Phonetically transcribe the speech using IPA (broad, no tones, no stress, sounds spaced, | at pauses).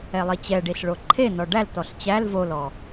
ɛ lˠ i t͡ɕ ɛ ɖ i ɬ ɭ o ǃʰ e n ɔ ɖ æ l t ɔ ɬ t͡ɕ æ l v o l ɔ